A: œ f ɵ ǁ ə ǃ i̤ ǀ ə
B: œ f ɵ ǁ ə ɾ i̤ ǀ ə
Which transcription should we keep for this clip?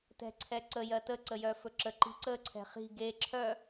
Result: A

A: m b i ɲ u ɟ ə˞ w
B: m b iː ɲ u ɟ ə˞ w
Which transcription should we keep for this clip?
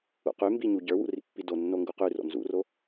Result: A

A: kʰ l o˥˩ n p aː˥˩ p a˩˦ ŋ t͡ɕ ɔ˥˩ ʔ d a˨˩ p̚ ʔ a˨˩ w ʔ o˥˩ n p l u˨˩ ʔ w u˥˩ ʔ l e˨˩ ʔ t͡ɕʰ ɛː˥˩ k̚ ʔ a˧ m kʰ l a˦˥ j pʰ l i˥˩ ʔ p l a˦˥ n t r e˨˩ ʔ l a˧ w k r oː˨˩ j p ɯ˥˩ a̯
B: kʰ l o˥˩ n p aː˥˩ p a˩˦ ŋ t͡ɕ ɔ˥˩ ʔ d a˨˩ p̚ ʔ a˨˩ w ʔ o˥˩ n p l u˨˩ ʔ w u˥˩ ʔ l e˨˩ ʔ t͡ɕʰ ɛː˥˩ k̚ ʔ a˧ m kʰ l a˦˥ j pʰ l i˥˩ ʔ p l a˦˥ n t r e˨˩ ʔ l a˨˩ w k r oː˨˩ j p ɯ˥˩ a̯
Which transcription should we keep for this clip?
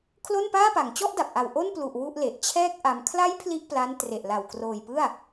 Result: B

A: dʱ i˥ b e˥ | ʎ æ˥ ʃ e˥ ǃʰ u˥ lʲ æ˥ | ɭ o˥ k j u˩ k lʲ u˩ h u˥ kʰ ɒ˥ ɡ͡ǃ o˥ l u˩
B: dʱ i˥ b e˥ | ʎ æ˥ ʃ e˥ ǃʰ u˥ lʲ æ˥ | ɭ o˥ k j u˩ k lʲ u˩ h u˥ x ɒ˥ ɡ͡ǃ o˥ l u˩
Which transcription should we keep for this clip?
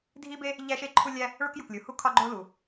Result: A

